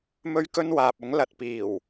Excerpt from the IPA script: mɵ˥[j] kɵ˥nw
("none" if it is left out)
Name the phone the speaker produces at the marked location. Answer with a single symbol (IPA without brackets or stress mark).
ɥ